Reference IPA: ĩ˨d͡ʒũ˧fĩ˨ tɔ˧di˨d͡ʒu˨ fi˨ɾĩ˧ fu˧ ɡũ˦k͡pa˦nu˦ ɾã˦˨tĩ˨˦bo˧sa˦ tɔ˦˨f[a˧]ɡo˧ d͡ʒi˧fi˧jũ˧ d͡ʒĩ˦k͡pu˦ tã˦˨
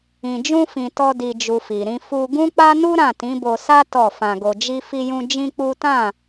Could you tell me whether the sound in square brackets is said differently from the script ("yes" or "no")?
yes